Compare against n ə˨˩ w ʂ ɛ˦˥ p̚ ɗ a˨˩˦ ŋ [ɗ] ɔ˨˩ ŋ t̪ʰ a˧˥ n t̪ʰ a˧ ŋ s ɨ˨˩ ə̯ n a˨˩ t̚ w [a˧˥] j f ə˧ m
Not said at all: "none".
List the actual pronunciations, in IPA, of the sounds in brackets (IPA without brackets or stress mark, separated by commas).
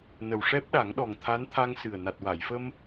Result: ɗ, a˨˩˨